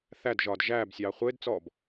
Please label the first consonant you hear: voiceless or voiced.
voiceless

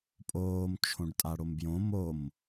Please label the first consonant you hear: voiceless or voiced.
voiceless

